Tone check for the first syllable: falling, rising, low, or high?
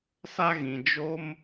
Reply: high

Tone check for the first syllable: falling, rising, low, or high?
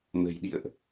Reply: low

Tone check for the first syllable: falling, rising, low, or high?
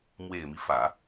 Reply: low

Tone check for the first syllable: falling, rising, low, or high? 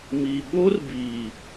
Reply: low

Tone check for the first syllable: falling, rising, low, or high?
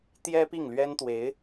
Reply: high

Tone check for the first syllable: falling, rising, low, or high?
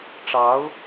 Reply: rising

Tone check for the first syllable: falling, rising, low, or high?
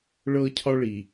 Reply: high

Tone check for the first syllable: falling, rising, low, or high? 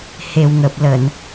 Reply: low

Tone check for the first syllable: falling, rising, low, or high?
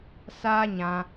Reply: high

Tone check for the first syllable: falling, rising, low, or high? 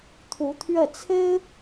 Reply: rising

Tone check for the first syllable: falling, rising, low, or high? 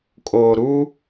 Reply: low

